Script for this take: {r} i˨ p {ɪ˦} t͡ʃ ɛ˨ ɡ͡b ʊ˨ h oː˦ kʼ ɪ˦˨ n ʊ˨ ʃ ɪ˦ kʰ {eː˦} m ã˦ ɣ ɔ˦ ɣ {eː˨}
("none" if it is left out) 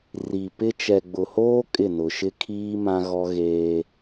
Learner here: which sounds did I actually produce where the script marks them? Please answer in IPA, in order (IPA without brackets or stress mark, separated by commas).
r, ɪ˦, iː˦, eː˦